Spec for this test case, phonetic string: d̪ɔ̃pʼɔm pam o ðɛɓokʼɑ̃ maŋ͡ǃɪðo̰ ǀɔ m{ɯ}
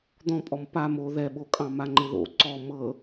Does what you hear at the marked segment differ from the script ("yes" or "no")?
yes